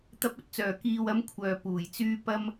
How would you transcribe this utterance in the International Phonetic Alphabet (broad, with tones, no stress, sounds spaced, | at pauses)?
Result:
t̪ ɐ˧ p̚ ɵ˧ t̚ t͡s œː˨˩ k iː˨ w ɐ˨˧ m kʷʰ œː˨˩ p uː˨˩ j t͡s yː˧ p ɐ˧ m